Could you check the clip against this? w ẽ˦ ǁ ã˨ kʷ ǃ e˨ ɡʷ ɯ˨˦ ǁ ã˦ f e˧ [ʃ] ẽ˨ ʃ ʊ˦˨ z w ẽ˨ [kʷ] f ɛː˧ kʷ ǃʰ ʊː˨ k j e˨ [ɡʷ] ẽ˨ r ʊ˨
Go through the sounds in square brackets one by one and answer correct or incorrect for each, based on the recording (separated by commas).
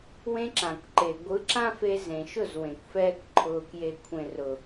incorrect, correct, incorrect